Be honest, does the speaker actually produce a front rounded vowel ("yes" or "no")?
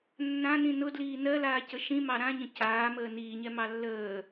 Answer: no